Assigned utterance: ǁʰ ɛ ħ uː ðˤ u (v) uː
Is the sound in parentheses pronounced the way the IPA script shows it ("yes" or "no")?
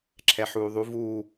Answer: yes